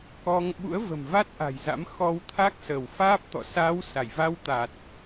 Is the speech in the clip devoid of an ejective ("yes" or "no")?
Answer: yes